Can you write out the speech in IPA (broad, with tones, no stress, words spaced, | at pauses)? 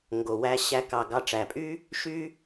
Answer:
ŋɡo˨wæ˧ ɕæ˧ kɑ˨ɡɑ˧ʈ͡ʂæ˨pʼy˦ | ʃy˦